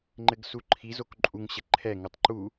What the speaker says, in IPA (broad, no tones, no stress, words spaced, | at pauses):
ŋ͡ǃɘɡsuǃʰizok ǃʼuŋɕɘ ǃʰɛŋutˤ ǃu